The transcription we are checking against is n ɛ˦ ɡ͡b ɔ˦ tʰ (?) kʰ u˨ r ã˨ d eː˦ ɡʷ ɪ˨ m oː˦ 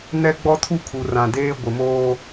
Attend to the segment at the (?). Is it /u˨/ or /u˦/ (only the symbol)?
u˦